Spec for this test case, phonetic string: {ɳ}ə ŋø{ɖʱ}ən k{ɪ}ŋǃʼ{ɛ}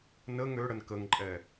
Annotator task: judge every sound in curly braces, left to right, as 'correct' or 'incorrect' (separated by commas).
incorrect, incorrect, incorrect, correct